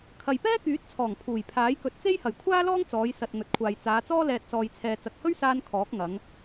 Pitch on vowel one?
low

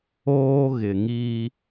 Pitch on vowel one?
high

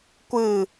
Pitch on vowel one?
low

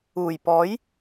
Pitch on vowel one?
low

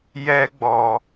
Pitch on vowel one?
high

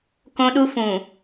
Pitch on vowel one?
high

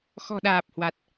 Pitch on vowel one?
low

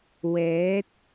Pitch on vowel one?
rising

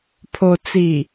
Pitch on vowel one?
low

